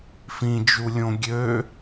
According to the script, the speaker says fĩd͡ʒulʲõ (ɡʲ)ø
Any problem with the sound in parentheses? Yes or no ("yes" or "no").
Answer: no